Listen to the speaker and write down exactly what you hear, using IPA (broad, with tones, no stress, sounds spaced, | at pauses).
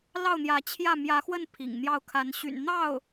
l ɑ˥˩ ʊ̯ n̪ j ä˧˥ t͡ɕʰ j ä˥˩ m j ä˧˥ x w ə˥˩ n pʰ ḭ˨˩ ŋ n̪ j ɑ˥˩ ʊ̯ kʰ a˧˥ n ɕ y̰˨˩ n n̪ ɑ˥˩ ʊ̯